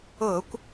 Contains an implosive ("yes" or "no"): no